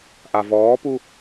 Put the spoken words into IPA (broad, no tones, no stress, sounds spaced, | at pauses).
ʔ a v ɔː p u